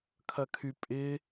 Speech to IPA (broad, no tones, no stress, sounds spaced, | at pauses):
kʰ ɐ kʰ y pʼ ɪ